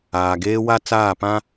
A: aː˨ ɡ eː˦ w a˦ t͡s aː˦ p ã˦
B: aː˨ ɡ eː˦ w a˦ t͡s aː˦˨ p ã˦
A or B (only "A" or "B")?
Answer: B